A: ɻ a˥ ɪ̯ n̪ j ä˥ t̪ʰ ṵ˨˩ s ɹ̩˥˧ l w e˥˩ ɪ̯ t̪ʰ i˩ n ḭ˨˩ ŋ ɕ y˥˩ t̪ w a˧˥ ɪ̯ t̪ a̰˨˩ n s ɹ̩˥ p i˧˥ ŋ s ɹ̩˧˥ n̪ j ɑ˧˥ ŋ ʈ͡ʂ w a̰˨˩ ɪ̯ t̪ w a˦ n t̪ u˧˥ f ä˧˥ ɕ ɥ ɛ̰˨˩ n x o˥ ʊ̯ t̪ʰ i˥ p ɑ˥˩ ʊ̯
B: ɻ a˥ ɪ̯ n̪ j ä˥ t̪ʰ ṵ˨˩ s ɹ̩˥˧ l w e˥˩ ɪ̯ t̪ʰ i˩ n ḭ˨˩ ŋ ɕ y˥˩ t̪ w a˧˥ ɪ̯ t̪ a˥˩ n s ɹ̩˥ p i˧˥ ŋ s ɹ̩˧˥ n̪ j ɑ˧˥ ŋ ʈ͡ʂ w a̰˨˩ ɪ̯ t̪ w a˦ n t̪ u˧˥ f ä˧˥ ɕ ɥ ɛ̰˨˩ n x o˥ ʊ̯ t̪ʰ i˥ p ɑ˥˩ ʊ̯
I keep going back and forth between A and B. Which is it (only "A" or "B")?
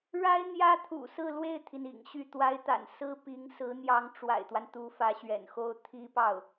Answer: A